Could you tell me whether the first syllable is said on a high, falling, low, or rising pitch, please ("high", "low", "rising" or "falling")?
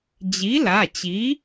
rising